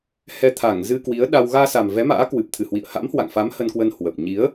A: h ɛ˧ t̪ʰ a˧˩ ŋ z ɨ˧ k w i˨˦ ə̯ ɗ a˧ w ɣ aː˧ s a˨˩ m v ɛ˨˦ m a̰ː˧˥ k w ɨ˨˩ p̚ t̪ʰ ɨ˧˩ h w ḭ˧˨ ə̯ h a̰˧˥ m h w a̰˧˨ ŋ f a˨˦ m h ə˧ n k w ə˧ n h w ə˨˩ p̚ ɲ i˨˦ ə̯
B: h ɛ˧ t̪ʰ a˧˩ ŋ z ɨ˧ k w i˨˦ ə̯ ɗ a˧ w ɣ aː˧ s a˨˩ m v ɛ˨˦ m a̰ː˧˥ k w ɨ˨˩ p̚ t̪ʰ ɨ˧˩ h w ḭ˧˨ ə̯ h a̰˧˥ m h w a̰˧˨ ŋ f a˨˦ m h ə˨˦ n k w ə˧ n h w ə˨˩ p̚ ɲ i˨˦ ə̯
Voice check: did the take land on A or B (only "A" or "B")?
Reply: A